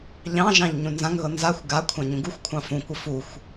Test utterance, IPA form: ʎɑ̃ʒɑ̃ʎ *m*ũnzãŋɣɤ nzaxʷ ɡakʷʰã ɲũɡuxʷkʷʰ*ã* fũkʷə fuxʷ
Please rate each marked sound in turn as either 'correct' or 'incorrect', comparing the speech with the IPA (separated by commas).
incorrect, incorrect